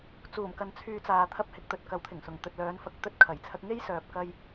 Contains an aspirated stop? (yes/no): yes